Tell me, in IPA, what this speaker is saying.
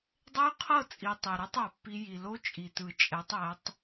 dˤ e˦ y̯ qʰ ɤ˦˨ t͡sʼ i˨ tˤ ɛ˨ ɾ o˦ tˤ a˨ pː i˦ j i˨ l o˦ t͡ʃʼ i˨ t ɯ˨ t͡ʃʼ ɛ˨˦ tˤ ɛ˨˦ tˤ

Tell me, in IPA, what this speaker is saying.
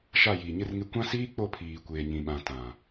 ʃ a˦˨ j iː˨ ɲ ɪ˦ r ŋ ɪ˦ kʷ ã˦ s iː˦ k͡p o˦˨ pʰ iː˨ kʷ eː˨ ɲ ĩ˨ ɓ ã˨ t ã˨

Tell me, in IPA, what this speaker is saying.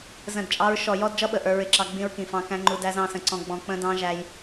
z ə̃˦˨ d t͡ʃʼ ɑ˦ ɹ ʃ ɔ˨ j ɔ˦ d d͡ʒ ʌ˦ ɓ ə˨ ʔ ə˞˦ ɹ ɪ˦ ǁ ɑ˦ ɡ͡b ĩ˦ ɹ k ĩ˨ f ɑ̃˦ k æ̃˦ ŋ͡ǃ u˦ d æ˦ z ɑ̃˦˨ s ə̃˨ ǀ ɔ̃˨ ɡ͡b ɔ̃˨ k͡p ə̃˦ d ɑ̃˦ ʒ æ˦ j

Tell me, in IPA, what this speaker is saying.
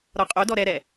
ɾ ɔ qʼ o d ɔ ɾ ɛ ɾ ɛ

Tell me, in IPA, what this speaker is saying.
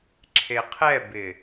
ǁʰ e qʰ ɛ b ɪ

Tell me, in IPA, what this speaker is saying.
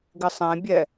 ɡ ɪ sˤ ɛ̃ bʲ ɛ

